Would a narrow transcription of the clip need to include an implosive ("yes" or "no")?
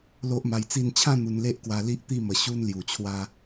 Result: no